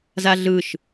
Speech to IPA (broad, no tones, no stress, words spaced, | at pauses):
zaɮɯʃ